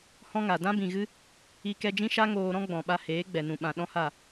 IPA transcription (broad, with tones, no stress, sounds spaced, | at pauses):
h ɔ̃˦ ŋ a˨ d ã˦ b ĩ˨ ɣ ɨ˦ | i˧ k ɛ˧ d͡ʒ ĩ˦ ʃ a˦ ŋ oː˧ ɾ ɔ̃˦ ɡ͡b ɔ̃˨ ɓ a˧ h eː˨˦ ɡ͡b ɛ˨ n ũ˨ ɓ ã˨ ɗ ɔ̃˦ h a˦˨